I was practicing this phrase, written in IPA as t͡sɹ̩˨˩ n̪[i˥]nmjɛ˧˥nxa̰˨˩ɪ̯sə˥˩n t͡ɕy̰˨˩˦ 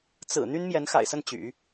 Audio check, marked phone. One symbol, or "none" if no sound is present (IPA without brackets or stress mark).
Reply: y˥